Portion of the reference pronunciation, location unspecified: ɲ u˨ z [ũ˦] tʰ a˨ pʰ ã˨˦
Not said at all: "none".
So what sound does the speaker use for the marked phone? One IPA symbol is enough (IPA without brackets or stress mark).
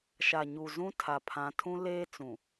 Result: ũ˦